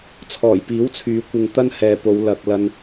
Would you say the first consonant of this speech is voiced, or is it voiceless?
voiceless